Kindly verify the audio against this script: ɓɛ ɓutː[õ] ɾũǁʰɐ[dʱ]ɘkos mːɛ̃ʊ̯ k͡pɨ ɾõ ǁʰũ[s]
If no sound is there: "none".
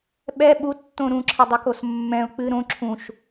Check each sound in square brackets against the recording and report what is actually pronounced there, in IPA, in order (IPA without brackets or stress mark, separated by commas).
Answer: õ, dˤ, ʃ